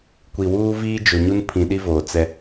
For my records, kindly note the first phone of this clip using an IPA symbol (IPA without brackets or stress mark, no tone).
kʷ